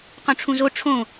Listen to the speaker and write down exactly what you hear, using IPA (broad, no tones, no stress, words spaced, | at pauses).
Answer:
qõʈ͡ʂʰũzo ʈ͡ʂʰõ